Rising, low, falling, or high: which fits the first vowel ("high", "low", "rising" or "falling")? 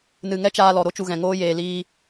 low